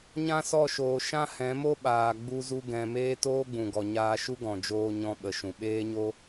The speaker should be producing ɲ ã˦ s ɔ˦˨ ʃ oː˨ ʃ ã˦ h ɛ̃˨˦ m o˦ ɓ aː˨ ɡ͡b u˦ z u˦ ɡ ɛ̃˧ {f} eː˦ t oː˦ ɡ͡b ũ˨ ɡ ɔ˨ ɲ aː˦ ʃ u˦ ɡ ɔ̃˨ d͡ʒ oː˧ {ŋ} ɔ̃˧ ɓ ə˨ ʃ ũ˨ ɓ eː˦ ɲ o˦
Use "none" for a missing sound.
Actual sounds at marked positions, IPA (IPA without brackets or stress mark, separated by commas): m, ɲ